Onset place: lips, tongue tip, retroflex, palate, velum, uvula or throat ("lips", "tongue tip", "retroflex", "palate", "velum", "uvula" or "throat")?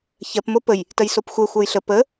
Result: palate